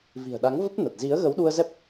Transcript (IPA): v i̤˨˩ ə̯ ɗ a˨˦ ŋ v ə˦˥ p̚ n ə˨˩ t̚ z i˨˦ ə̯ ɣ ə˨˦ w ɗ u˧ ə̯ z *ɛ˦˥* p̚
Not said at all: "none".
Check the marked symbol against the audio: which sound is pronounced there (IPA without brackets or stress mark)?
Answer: ɛ˦˥